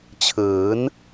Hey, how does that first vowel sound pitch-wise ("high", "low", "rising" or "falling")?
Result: rising